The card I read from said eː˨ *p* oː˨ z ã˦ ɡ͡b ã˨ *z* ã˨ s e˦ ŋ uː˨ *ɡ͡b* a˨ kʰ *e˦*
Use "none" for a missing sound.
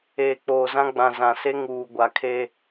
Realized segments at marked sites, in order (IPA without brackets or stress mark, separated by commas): k͡p, z, ɡʷ, e˦